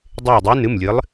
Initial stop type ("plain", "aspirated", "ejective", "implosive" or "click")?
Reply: plain